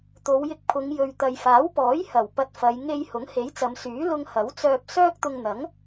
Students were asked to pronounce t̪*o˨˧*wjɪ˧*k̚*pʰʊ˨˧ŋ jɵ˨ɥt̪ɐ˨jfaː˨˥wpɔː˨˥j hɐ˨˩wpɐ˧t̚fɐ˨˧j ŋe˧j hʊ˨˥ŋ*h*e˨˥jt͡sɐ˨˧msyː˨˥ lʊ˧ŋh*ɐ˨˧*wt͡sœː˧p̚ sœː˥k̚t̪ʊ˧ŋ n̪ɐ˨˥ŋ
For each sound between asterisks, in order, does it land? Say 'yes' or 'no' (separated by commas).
yes, yes, yes, no